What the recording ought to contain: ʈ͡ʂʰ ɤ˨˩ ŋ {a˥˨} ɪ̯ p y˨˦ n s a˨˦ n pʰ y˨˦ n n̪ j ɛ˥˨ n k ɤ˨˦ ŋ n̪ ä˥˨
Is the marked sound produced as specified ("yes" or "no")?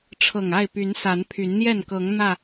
yes